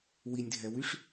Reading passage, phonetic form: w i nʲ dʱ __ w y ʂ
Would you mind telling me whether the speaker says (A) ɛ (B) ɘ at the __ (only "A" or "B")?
A